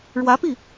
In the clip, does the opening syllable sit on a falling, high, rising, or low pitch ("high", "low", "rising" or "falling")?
rising